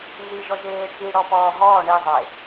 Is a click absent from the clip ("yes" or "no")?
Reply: yes